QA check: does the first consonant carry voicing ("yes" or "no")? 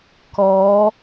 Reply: no